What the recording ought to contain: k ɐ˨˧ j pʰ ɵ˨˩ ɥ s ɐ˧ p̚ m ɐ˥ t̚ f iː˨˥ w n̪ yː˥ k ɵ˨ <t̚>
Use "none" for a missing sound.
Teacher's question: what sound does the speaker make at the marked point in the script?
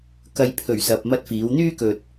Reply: t̚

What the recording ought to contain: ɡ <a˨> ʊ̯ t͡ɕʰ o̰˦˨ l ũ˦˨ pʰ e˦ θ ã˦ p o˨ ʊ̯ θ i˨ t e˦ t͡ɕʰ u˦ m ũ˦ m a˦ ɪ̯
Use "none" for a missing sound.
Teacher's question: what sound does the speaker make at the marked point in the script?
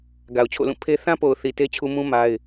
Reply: a˨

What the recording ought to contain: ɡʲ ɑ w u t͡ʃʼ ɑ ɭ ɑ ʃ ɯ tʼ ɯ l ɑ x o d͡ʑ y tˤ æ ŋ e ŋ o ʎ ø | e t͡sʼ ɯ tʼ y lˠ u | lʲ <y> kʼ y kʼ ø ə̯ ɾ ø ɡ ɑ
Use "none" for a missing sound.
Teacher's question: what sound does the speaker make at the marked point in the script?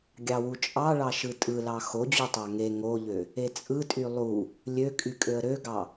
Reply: ø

